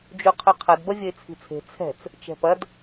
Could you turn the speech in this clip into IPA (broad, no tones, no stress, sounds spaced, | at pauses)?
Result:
d͡ʒ u qʰ ɵ qʰ ɐ d b ɐ vʲ ɐ ɪ̯ t͡sʰ i̤ t͡sʰ e̤ t͡sʰ ɛ̤ t͡s | t͡ʃ ɛ̤ p ɐ d